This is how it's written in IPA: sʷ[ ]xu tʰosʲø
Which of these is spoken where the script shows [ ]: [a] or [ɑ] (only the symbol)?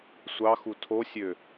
ɑ